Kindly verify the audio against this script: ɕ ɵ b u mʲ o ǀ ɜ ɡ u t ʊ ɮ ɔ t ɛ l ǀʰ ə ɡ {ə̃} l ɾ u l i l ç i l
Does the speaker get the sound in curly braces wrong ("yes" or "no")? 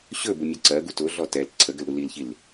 yes